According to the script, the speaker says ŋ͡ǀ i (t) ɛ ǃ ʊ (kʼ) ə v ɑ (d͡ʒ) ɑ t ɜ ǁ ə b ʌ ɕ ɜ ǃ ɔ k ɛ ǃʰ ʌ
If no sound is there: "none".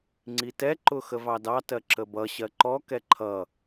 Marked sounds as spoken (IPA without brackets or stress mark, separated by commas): t, x, d